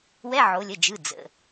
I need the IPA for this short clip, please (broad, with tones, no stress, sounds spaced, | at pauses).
w ɛ˧˥˧ ʕ o˩˧ lʲ ə˩˧˩ d͡ʒ ɯ˩˧˩ d͡z ə̰˩˧˩